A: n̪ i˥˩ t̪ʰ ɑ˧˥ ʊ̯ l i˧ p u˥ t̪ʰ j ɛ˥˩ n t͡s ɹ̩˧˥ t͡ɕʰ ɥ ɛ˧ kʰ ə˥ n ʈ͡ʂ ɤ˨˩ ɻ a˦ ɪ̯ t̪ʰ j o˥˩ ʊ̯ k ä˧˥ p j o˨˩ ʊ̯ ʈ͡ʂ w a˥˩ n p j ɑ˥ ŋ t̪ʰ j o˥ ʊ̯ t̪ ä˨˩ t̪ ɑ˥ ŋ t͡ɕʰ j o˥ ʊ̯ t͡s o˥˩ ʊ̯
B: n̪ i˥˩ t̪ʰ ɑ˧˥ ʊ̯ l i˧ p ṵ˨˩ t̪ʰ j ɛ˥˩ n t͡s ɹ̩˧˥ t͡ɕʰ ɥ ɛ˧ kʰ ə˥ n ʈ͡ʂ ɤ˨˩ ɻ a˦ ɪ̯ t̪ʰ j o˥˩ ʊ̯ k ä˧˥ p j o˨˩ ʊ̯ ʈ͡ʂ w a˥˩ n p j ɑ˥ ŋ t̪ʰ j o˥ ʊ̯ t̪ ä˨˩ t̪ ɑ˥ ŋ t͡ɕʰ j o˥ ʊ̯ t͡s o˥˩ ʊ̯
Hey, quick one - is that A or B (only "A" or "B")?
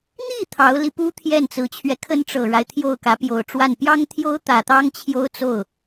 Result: A